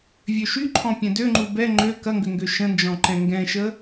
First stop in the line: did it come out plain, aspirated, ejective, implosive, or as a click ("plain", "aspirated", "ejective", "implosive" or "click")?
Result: click